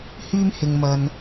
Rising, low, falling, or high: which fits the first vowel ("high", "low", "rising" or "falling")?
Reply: high